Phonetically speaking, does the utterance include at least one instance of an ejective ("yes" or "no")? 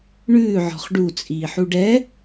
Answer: yes